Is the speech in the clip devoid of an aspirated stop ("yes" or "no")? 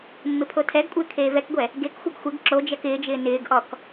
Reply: no